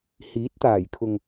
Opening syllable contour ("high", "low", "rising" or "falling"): rising